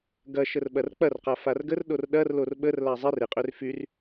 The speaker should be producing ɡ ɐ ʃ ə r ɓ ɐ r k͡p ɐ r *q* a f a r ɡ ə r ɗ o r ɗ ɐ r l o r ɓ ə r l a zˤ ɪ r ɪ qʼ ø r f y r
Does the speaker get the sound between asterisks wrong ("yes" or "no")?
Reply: no